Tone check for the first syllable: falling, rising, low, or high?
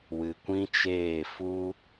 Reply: low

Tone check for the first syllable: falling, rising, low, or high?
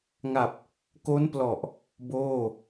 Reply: low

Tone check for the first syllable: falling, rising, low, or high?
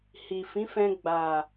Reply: low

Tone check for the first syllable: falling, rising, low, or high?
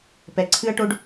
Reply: low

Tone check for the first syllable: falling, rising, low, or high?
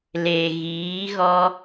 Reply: low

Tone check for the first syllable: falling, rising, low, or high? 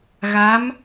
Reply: rising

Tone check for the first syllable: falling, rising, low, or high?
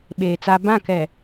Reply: low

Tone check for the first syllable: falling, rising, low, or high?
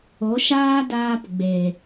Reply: rising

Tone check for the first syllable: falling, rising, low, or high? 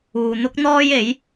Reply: low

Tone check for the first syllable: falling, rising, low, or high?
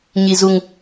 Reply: low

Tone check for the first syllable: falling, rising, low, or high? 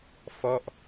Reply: falling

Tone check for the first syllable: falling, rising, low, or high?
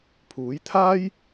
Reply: rising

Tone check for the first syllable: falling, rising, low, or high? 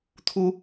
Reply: high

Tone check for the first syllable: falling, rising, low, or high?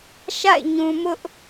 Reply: falling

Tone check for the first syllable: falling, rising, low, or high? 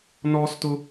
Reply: high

